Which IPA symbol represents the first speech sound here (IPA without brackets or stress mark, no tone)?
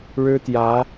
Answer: ɻ